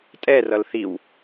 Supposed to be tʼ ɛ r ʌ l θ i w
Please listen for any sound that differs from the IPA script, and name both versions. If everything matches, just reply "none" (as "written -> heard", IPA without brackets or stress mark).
none